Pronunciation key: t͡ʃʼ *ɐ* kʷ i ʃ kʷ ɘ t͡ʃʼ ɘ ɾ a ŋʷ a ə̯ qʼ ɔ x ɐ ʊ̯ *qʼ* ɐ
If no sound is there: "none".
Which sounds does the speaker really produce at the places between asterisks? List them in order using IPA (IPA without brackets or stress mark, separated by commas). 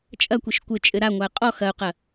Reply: ɐ, q